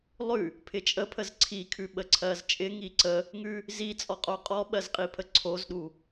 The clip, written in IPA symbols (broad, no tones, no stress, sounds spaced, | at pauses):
lˠ ʉ | pʰ ɪ t͡ʃʼ ə pʰ ə z ǀʰ i kʰ ʉ ɓ ə ǀʰ ɜ z t͡ʃʼ ɪ ŋ i ǀ ə | ŋ ʉ | z i t͡sʼ ɔ qʼ o qʼ ɔ ɓ ɜ z qʼ i pʰ ə ǀʰ o z ɗ u